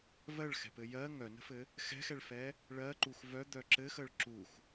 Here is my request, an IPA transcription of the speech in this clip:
vɜɭxɛ̤pɘ jɜ ŋœnə̤fɘ | xɛ̤xɛɭfɛ | ɭɜǃux vœd̪œ ǁɘxəɭ ǁux

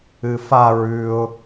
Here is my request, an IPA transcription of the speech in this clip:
ɨfa ɹʉʊ̯

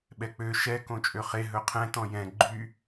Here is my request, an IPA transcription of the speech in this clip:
ɓɛk͡pø ʃɛ kõt͡ʃʼøχe ɦɵqʰɛ̃ tɔ̃jɛ̃ ɡ͡ǃy

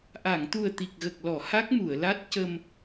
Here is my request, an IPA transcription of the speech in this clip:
ʔa˨˩˨ŋt̪u˨˩ə̯ t̪i˨˩k̚ɣə˨˩k̚lɔ˨˩˨ ha˦˥k̚mu˨˩˨ə̯la˦˥t̚cə˧m

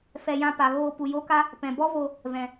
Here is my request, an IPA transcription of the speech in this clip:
fɛ˧ jã˧pa˨ɣoː˧ pu˨jo˦ka˦ | pɛ̃˨ bɔ˦vo˧ | vɛ̃˧

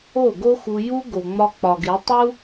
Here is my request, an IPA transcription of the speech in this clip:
o˦˨ɡo˦xu˧ju˦ ɡo˨ŋ͡mɒ˧k͡pɒ˨ɡe˨˦ tˤu˦

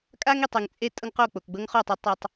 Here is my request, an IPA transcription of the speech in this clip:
kʼa˦ŋi˨tˤ ɯ˨ŋt͡sʼe˦ tʼɤ˦ŋqo˦˨ k͡po˨kɡ͡bɤ˦ŋχo˦˨tˤu˦ tˤe˦tˤ

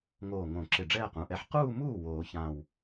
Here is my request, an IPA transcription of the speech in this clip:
ŋoː˧˩ŋõ˨˩˦ ǁɪ˧˩ɖ͡ʐɛː˥˧qũ˩˧˩ʔɛ˧˥ħ quː˥˧muː˥˩ woː˨˩˦ çãː˧˩w

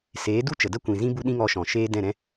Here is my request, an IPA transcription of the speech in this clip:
seː˨˦du˦ t͡ʃə˨də˦kʷĩ˨zĩ˦ bu˦ɗĩ˦ŋɔ˧ʃɔ̃˨ ʃeː˧ dɛ̃˦˨ɾɛ̃˦

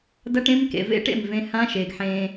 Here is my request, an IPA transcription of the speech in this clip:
dɐ˦ʈ ẽ˦mkḛ˨vḛ˦ʈḛ˦˨m vẽ˧hã˦ʃe˨ɡ ħẽ˧

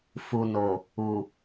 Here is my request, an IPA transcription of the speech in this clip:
fu˨no˨ | u˨

